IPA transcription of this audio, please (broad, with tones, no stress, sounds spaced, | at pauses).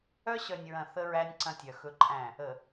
œ˦ ɕ œ˨ nʲ ɹ ɐ̃˨ θ ə˦ ɹ æ˦ nʲ ǀ ɐ̃˦ tʲ œ˨ x ɵ˦ ǃʼ æ̃˦˨ | ə˨